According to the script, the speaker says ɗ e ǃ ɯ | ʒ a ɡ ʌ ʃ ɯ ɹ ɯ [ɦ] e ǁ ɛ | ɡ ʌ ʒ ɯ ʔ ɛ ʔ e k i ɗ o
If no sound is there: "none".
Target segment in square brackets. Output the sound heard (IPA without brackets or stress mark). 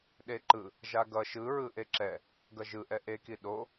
ʔ